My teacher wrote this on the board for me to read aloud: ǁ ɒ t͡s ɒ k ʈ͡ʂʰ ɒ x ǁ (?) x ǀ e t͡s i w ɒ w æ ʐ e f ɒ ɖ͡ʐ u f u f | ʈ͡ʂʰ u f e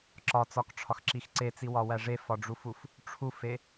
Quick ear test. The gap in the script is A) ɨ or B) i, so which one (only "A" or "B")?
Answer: B